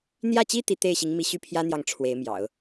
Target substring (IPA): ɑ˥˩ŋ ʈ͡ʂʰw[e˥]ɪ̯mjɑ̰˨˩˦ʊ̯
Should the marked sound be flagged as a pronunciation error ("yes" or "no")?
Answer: yes